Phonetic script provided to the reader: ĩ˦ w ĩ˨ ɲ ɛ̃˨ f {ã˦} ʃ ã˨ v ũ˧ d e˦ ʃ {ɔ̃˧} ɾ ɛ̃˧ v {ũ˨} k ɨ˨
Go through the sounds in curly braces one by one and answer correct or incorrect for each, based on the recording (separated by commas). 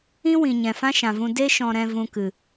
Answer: correct, correct, incorrect